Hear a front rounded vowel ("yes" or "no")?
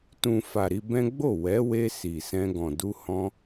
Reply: no